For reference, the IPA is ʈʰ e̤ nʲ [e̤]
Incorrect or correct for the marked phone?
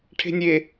incorrect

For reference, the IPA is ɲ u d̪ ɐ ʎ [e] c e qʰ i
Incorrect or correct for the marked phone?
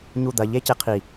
correct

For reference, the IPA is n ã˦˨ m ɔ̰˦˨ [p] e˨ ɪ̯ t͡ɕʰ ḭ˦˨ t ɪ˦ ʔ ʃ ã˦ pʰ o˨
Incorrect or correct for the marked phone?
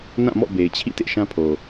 incorrect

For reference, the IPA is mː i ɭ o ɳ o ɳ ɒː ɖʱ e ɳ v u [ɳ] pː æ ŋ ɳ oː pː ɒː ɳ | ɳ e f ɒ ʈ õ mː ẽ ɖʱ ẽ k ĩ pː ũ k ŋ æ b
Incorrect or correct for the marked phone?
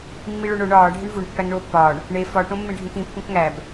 correct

